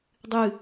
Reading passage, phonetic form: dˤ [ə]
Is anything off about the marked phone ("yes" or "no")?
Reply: yes